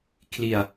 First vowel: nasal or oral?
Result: oral